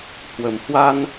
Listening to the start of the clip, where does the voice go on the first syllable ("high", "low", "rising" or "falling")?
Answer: low